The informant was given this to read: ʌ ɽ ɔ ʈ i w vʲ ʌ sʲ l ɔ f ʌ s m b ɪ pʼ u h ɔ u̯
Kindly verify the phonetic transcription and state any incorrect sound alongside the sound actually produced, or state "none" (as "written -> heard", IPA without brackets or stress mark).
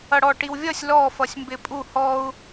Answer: s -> sʲ